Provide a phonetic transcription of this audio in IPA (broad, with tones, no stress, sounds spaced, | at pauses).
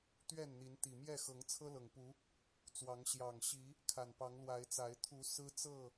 t̪ ɥ ɛ˥˨ n n̪ i˨˦ n t̪ i˨˩ m j ɛ˥˨ x ɤ˨˦ ŋ t͡sʰ ɤ˦ l ɤ˨˩ ŋ p u˨˦ | t͡s w ɑ˨˦ ŋ ɕ j ɑ˨˩ ŋ ɕ i˨˦ | kʰ a˨˩ n p ɑ˨˦ ŋ l w a˨˦ ɪ̯ t͡s a˨˦ ɪ̯ t̪ʰ u˨˦ s ɹ̩˦ t͡s ɤ˥˨